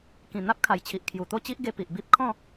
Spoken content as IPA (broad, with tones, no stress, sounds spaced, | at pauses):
k ĩ˨˩ n̪ a˦ p̚ kʰ a˨˩ j t͡ɕʰ i˨ ʔ kʰ j u˨˩ t̪ o˥˧ t͡ɕ i˦ ʔ ɡ e˧ p i˨ ʔ b i˦ p̚ kʰ ɔ̃˥˧